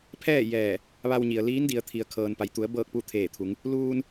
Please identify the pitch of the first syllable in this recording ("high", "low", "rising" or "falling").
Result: falling